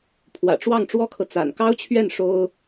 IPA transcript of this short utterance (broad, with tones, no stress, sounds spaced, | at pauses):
pʰ w ä̰˨˩ ʈ͡ʂ w ɑ˥˩ ŋ ʈ͡ʂ w ɔ˥ kʰ ɤ˨ t͡s a̰˨˩ n k ɑ˥ ʊ̯ t͡ɕʰ ɥ ɛ˥˩ n ʂ o˥ ʊ̯